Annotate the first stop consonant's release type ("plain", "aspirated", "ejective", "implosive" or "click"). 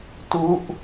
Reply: plain